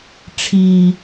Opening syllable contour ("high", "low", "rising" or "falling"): low